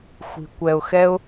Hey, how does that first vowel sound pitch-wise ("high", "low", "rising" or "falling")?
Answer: low